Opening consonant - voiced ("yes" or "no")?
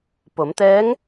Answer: no